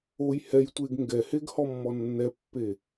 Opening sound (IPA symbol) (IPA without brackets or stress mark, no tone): o